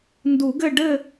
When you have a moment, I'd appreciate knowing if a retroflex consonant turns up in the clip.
yes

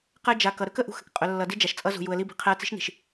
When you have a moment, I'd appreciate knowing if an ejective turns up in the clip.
yes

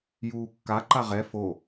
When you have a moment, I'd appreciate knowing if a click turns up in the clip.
yes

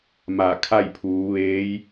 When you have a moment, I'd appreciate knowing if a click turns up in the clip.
no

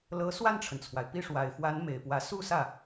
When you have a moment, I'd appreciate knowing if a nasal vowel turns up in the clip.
no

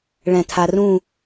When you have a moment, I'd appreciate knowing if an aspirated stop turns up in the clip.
yes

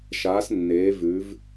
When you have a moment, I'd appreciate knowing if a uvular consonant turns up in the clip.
no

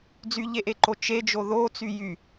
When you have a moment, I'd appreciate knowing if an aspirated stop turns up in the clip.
no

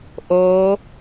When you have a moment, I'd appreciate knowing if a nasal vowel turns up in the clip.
no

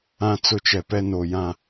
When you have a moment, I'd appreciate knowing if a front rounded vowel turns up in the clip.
no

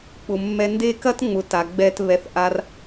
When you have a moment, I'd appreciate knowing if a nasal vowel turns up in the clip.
no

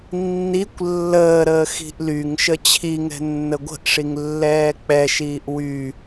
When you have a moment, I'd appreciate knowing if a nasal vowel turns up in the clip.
no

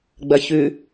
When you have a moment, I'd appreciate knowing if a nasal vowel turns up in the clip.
no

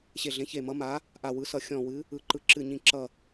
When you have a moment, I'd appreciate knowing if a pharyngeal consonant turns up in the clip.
no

